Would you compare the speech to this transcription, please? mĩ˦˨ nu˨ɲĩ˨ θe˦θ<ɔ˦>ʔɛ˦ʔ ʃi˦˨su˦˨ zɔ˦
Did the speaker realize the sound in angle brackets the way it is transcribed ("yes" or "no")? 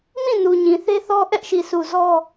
yes